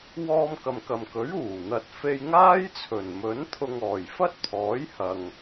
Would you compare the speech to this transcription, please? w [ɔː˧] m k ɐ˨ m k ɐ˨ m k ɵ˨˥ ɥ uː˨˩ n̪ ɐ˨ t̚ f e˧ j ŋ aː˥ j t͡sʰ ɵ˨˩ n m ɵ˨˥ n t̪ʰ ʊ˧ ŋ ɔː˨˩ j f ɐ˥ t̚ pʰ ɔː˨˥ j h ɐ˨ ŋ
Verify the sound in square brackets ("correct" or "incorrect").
correct